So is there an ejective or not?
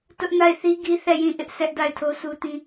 no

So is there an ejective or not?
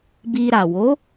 no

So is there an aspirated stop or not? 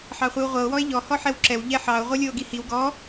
no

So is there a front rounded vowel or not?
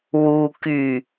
yes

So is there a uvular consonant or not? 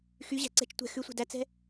no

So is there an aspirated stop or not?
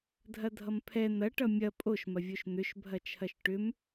yes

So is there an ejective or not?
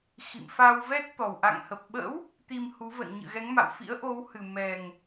no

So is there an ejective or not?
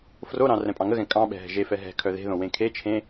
yes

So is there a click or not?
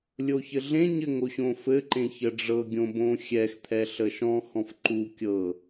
yes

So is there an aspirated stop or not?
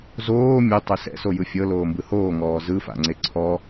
yes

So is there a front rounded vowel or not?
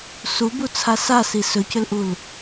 yes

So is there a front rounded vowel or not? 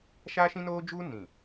no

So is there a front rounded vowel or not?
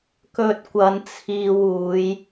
no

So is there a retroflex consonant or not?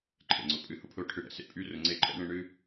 yes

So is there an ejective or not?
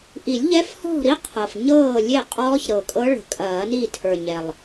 yes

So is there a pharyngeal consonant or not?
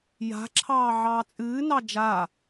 yes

